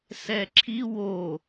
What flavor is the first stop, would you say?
click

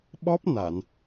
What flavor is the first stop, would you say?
implosive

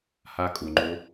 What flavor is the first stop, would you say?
ejective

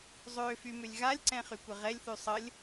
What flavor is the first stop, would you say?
click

